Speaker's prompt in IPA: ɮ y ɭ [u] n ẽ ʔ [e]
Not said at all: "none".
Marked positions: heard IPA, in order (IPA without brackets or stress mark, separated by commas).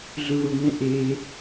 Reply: u, e